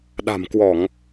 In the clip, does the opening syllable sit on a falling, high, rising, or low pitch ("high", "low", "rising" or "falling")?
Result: low